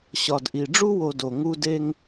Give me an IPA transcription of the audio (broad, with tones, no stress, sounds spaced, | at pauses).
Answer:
ɕ ɒ˨ d ʔ i˨ ɖ͡ʐ u˦ w o˨ d o˨ ŋ u˦ d e˦ ŋ